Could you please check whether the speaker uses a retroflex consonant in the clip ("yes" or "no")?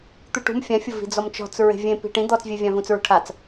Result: yes